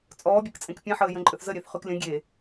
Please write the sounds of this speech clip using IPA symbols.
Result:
t͡sʼ ɔː bʲ ʊ k t͡sʼ ẽ k pʲ ẽ ħ əː j ə̃ ǃʼ ʏ θ z ə ɾʲ e θ χ ʉ k lʲ ə̃ ɡʲ e

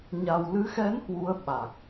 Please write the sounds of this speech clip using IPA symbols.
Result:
ɲ a˨˩ w l ɨ˨˦ x ɛ˨˦ n h w u˨˦ ə̯ ɓ a˨˩ k̚

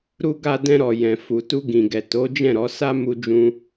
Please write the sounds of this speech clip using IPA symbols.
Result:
ɾ u˧ ɡ a˧ d ɛ̃˧ ɾ ɔ˨ j ɛ̃˨ f u˨ t u˧ ɡ ĩ˨ ɡ ɛ˨ t o˨˦ d͡ʒ ɛ̃˦˨ ɾ ɔ˨˦ s a˦ m u˦ d͡ʒ ũ˦

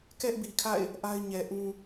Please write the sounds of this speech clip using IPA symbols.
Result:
k ɛ˦ ʔ b i˨ kʰ a̰˦˨ ɪ̯ | ʔ a˦ ɪ̯ ɲ ɛ˨ ʔ ũ˦

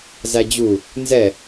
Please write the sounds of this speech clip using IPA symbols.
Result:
z æ d͡ʑ u | n z ɛ

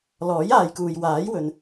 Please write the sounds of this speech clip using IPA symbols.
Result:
l ɔː˨˥ j aː˨ j k uː˨ j w aː˨˥ j w ɵ˧ n

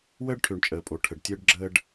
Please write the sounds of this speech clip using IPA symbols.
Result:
w əː˦ ɖ ʈʰ ø˨ ɳ t͡ʃʼ əː˨ pʼ o˨ ʈʰ ə˨ ɖ tʲ əː˦ ɖ ɡ͡ǁ əː˦ ɖ

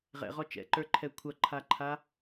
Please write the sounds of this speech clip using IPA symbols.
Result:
ʁ ɛ̰ ʁ ɔ t͡ʃ ɛ̰ ǃ ə˞ ǃʰ ɛ kʷʰ ʌ ǃʰ a ǃʰ a

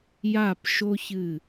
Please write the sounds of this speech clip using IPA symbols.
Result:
j a˥˧ p ʃ o˥ ç ɨ˥˧

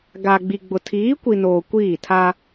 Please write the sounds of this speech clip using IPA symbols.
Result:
ɡ a˨ ɡ͡b i˨ ɡ͡b ʊ˨ tʰ iː˨˦ kʷ i˨ n oː˨ kʷ iː˦˨ tʰ a˦

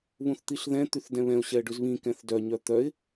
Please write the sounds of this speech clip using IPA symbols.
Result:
β ũ θ t̪ i ɬ ð ɛ̃ t̪ y θ d ɛ̃ β ɛ̃ ʊ̯ ɕ ɛ ə̯ ɖ ʉ z β ĩ k ɛ̃ θ d œ ɲ œ t̪ œ ɪ̯

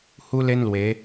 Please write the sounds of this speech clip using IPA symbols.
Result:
h u˦ l e˦ n l w e˨˦

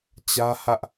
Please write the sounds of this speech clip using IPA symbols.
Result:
t͡ɕ ä˦ h ä˦ ʔ

